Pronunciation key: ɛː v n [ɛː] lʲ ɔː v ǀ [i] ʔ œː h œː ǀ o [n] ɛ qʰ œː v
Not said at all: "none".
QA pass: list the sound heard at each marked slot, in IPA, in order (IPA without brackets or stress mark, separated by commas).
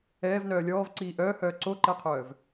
œː, iː, ǃ